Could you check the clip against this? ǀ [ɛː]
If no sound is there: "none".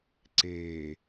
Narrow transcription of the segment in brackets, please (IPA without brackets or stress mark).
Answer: eː